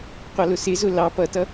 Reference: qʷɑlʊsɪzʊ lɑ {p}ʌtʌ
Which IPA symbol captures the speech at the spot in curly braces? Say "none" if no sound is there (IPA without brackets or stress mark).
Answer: p